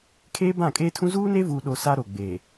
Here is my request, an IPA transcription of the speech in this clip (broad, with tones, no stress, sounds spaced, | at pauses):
kʰ eː˦ b ã˦˨ kʼ eː˦ tʰ ũ˦ z uː˦ n e˦ v uː˨ ɗ o˨ s a˦ ɾ o˨ ɡ͡b eː˨